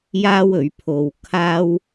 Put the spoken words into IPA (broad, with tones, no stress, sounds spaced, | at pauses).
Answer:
j aː˥ w ɵ˨˥ ɥ pʰ o˧ w kʰ aː˥ w